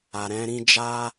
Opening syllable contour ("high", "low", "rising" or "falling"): low